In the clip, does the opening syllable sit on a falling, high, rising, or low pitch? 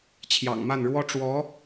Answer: low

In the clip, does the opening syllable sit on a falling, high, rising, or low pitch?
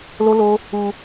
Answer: high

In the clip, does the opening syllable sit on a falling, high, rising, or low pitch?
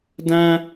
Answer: high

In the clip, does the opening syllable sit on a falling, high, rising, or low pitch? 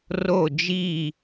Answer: falling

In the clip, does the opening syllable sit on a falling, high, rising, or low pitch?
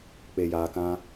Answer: low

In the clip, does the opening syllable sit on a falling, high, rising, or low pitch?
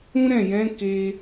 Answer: high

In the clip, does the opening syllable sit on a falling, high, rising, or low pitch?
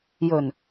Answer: low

